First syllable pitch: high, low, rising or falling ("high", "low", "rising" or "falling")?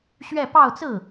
falling